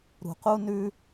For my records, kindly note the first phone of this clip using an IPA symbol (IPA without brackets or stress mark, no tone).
ɾ